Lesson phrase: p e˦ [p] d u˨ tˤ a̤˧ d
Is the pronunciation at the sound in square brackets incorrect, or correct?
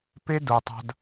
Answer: incorrect